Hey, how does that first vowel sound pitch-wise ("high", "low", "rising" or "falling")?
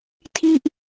falling